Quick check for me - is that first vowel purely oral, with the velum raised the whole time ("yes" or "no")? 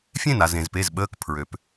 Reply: no